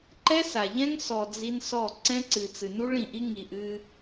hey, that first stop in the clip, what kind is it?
click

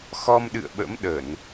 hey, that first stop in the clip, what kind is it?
implosive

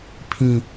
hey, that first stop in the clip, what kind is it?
aspirated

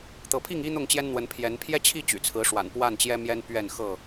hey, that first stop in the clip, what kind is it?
plain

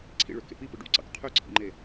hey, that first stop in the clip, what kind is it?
click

